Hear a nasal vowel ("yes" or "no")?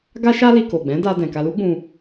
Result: yes